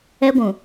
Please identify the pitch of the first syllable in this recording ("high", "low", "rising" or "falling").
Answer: high